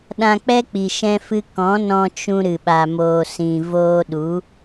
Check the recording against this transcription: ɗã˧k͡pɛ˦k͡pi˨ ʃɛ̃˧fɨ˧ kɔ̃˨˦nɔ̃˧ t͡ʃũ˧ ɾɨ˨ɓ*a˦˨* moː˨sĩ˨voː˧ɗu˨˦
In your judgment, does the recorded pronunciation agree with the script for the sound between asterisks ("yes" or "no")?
no